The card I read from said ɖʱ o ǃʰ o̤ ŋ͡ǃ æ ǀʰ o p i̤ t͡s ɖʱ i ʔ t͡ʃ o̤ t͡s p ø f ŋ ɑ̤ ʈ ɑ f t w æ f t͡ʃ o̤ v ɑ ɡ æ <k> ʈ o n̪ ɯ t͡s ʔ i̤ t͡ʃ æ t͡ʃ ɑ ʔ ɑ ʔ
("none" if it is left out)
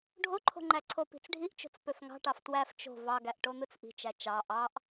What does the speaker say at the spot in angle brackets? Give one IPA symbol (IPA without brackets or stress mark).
ʔ